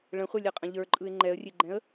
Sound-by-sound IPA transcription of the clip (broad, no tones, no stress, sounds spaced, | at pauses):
ɭ ə̃ χʷ ɛ lʲ ɛ qʼ ə̃ ʎ ə˞ ǃʼ ɯ ɪ̯ ŋ͡ǃ ɛ ə̯ rʲ e ɡ͡ǃ ɛ̃ ə̯